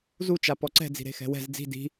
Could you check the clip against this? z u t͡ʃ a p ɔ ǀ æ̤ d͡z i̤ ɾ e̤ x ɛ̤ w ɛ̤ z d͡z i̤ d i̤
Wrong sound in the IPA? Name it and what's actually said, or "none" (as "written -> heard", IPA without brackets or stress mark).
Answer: æ̤ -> ɛ̤